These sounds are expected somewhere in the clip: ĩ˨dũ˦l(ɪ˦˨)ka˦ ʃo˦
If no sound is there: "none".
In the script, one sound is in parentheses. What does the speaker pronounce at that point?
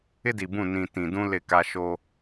ɪ˦˨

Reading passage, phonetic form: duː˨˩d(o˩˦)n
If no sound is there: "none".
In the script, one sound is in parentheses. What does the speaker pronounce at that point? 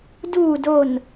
o˨˩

